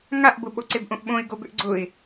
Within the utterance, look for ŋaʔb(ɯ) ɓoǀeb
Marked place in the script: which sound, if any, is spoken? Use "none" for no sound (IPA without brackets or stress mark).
ʊ